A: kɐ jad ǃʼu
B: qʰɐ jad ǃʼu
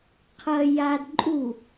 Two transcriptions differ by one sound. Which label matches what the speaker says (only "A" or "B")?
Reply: B